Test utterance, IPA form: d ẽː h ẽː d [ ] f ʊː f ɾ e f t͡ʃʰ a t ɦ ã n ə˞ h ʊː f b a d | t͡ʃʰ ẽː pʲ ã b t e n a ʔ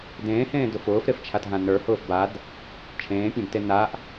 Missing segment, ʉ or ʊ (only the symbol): ʊ